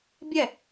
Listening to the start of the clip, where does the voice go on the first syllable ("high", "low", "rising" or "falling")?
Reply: falling